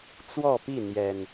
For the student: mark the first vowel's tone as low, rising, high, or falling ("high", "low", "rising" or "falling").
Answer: falling